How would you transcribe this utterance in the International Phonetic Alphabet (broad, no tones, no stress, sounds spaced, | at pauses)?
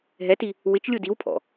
ɦ ɛ t i | w ɪ t͡ʃ lʲ u d i w pʰ ɔ̰